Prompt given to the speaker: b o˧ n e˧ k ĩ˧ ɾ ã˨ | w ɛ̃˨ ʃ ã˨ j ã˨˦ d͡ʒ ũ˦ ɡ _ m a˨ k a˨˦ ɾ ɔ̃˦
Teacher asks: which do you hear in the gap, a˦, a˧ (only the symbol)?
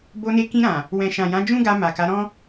a˧